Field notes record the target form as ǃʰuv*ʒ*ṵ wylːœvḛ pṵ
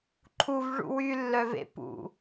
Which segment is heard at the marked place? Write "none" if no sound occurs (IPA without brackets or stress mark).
ʐ